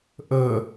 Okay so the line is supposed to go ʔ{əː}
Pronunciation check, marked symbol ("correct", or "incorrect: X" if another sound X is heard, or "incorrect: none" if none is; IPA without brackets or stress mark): correct